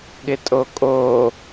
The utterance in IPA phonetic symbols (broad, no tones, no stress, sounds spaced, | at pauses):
ɠ ɪ tʼ o kʼ o